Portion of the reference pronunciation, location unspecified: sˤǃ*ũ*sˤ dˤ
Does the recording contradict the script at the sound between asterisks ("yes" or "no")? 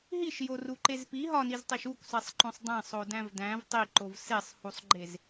yes